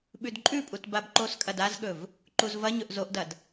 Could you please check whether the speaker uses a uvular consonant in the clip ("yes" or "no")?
no